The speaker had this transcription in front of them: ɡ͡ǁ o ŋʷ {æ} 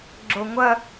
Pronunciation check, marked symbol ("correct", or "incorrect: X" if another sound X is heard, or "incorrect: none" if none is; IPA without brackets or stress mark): incorrect: ɐ